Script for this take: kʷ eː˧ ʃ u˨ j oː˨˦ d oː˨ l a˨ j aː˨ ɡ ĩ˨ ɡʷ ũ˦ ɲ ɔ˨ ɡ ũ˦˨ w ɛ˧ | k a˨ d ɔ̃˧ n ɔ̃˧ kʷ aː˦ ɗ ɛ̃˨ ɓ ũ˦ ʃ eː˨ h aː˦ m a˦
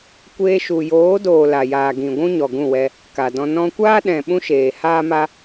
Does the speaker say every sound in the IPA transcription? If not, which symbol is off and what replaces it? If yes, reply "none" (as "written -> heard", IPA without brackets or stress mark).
none